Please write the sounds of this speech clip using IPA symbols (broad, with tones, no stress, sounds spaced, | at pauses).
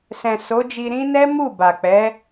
s ɛ̃˨ s o˨˦ d͡ʒ i˧ ɾ ĩ˦ n ɛ˦ m u˦˨ b a˨ k͡p ɛ˨˦